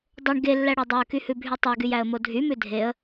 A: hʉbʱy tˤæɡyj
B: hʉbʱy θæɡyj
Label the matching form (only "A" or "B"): A